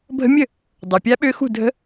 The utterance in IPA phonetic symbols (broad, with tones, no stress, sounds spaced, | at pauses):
bʱ ə̤˦˥ mʲ ə˥˨ | dˤ ø˨ pʲ a˦˥ ɓ ø˦˥ x ṳ˥˨ dʱ ə̤˦˥